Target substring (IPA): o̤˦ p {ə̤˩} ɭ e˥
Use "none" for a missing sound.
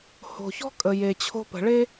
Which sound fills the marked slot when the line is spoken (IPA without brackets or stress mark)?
ə̤˩